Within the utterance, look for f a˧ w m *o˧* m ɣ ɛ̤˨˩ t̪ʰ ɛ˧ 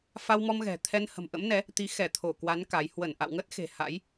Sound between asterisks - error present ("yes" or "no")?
yes